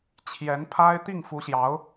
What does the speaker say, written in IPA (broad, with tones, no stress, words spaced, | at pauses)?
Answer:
t͡ɕʰjɛ˧˥npʰa˥ɪ̯ t̪i˥˩ŋfu˧˥ɕjɑ˧˥ʊ̯